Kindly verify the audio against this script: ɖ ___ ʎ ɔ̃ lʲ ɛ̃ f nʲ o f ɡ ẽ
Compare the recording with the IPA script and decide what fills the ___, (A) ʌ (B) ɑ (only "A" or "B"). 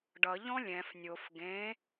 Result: A